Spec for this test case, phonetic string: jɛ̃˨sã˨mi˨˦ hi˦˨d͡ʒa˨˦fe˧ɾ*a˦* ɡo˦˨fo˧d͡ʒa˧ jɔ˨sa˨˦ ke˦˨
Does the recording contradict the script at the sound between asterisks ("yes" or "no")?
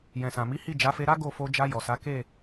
no